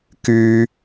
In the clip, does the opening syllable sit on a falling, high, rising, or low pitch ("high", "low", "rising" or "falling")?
high